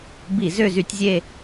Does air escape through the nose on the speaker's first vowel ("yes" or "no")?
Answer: no